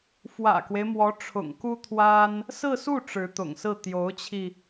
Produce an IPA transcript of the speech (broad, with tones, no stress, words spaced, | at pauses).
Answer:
fwä̰˨˩kwe˦ɪ̯mwɔ˧˥ ʈ͡ʂʰʊ̰˨˩ŋku˥t̪ʰwa˥n | sɹ̩˥˧su˥˩ ʈ͡ʂɻ̩˧˥t̪ʊ̰˨˩ŋsɹ̩˥˩ t̪jo˧˥ʊ̯t͡ɕʰi˧